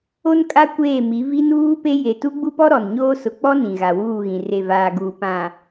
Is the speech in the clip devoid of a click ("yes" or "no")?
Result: yes